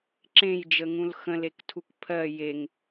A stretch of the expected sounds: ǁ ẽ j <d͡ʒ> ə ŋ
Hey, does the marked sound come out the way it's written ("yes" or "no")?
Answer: yes